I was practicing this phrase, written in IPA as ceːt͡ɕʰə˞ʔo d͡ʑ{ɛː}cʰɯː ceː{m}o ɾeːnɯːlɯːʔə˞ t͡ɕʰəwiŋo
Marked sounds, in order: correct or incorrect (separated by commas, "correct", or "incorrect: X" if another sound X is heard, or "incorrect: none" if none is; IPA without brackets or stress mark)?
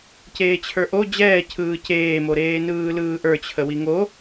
correct, correct